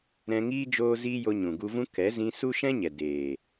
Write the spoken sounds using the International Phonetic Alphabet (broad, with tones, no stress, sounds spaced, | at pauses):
ɾ ɛ̃˧ ŋ iː˦ d͡ʒ oː˦ z iː˦ j o˧ ɲ ũ˨ ɡ u˧ v ũ˦ k ɛ˨˦ z ĩ˧ s u˦ ʃ ɛ̃˦ ɲ ɛ˨ d eː˨